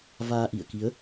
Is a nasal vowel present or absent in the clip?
absent